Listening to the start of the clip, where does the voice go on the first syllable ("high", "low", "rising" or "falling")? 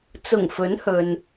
low